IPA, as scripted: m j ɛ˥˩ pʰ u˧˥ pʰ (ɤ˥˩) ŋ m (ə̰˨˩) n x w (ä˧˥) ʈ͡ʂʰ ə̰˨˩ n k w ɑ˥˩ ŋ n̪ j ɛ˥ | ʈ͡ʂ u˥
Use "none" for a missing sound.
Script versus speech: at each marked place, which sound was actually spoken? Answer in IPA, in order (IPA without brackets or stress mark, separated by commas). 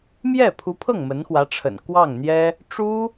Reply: ɤ˥˩, ə˧˥, ä˧˥